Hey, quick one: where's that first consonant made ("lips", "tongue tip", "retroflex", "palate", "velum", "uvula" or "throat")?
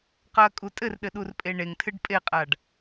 uvula